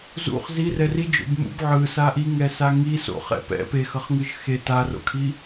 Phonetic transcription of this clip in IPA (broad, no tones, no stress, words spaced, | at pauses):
zṵχ zirɛ rid͡ʒo̰b mṵb ʕɯsa ʔiŋɛ saŋi so̰ χɛ̰pɛ̰ pexʌχŋɯʒ xe taro̰kʰi